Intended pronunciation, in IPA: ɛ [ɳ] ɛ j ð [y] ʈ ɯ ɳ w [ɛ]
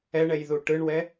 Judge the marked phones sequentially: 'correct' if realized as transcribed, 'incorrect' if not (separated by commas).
correct, incorrect, correct